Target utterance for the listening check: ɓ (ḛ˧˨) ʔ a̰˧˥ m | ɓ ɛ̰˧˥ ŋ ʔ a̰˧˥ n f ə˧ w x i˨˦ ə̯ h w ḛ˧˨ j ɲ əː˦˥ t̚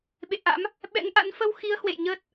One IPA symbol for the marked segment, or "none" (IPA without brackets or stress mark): ḛ˧˨